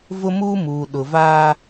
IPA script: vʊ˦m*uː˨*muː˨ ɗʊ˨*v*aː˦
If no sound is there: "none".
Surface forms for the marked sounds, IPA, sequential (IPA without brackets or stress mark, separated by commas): uː˦, v